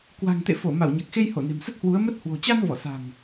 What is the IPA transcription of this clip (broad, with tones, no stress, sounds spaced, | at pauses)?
k w a̤˨˩ ŋ t̪ ḛ˧˨ f o˧˩ m a˧˩ w ɲ a˨˩ k̚ x e˧ j h o˧˩ n e̤˨˩ m s ə˦˥ t̚ h w u˨˦ ə̯ m ə˦˥ t̚ h w o̤˨˩ t͡ɕ a˧ n v ɔ˧˩ s a̤˨˩ ŋ